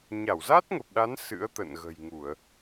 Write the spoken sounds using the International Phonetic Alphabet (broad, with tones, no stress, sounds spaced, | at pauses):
ɲ a˧˩ w z a˦˥ t̚ ŋ ə˨˩ p̚ ɗ a˨˦ n s ɨ̰˧˥ ə̯ t̪ ə̰˧˨ n ɣ ə̤˨˩ j ŋ u˧˩˨ ə̯